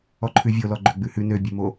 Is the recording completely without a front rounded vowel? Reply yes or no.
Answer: no